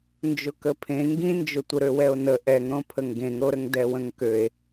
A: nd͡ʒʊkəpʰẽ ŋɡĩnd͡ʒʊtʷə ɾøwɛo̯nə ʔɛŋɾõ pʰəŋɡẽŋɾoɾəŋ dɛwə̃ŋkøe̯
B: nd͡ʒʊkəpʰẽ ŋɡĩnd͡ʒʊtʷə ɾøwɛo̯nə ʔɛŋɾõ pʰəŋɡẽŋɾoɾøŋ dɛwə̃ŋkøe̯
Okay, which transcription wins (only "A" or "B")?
A